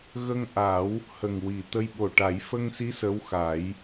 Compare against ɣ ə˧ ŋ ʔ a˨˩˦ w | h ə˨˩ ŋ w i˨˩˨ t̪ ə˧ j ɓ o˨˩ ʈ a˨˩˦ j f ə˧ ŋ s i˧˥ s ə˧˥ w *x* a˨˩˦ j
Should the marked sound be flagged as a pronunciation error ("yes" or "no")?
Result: no